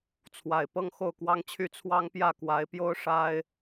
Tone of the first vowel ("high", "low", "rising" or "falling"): low